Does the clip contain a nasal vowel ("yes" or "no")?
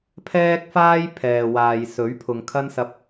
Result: no